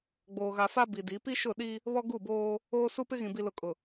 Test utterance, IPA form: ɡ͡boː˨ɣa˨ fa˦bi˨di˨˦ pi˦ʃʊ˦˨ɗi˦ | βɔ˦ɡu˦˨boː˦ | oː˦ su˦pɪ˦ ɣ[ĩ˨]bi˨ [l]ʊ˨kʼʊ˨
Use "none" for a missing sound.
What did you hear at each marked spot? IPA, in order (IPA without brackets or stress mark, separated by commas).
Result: ĩ˨, l